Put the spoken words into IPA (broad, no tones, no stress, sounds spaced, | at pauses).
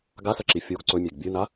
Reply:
ɡ a s ɐ ǁ i fʲ o ɡ ǀ ɵ mʲ e ɡ bʲ ɨ n a